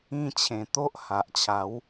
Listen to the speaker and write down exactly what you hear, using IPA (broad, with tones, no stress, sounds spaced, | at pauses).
ĩ˧ t͡ɕʰ ẽ˨˩ t̪ o˦ ʔ h a˨ ʔ t͡ɕʰ a˨˦ w